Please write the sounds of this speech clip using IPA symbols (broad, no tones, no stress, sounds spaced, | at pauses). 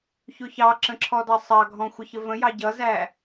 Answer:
ç ʊ ç ɑ ǁ ə̃ ǁʰ ɔ d ɑ sˤ ɑ ɡʱ ɔ̃ xʷ ʌ ç ə v ə̃ j ɑ ɟ ʌ z æ